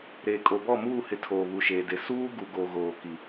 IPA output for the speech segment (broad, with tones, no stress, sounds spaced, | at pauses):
ɾ eː˨ kʼ o˨ b ɔ˦˨ m uː˦˨ h ɪ˨ tʰ oː˨ β u˨ ʃ eː˨ d e˨˦ s uː˦ ɡ u˨ ɡ o˨ ɣ oː˨ k i˨